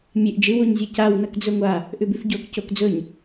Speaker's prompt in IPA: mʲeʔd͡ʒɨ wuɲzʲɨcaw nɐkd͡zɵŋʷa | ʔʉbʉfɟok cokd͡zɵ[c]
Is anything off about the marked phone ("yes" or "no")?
yes